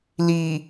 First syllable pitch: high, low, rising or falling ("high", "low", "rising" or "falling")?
low